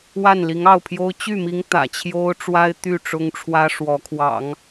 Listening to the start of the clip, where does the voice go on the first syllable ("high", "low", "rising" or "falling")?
falling